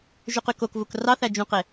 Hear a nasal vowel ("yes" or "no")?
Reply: yes